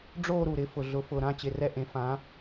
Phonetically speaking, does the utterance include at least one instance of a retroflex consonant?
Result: yes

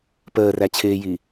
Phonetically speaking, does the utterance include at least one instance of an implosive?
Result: no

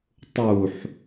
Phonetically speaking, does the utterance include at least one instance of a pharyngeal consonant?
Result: yes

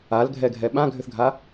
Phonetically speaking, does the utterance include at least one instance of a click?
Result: no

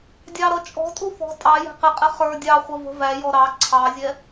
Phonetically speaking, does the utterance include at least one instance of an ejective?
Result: yes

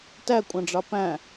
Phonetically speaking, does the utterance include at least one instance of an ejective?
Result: yes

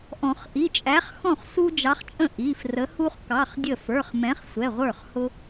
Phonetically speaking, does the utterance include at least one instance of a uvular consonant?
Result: yes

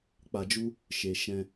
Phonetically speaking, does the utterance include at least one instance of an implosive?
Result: no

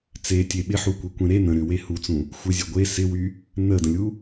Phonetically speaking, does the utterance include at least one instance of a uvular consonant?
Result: no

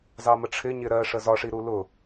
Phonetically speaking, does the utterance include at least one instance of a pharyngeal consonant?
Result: no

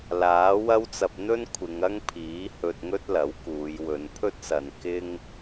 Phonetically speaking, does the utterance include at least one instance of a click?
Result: no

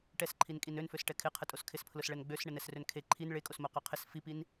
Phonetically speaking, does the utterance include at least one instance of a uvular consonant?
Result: yes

